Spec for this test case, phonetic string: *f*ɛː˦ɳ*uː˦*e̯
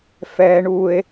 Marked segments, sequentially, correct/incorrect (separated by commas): correct, correct